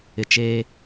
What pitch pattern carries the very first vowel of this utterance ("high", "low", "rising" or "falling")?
low